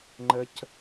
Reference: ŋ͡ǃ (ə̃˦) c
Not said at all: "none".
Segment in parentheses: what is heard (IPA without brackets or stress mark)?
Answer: ə˦